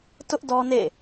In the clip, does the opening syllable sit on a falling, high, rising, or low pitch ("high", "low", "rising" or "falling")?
high